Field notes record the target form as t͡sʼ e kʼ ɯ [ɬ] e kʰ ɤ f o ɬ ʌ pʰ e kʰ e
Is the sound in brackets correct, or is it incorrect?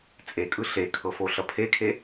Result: correct